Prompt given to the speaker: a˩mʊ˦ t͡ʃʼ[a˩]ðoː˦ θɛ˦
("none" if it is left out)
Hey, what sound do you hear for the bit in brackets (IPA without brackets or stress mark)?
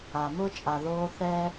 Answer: a˩